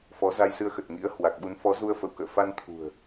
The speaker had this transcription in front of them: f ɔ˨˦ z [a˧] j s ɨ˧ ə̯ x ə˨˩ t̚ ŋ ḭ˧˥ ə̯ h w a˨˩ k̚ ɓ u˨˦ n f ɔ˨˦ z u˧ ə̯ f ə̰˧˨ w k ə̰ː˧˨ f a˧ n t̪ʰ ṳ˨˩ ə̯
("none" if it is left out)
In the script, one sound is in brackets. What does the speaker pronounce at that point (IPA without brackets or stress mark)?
a˧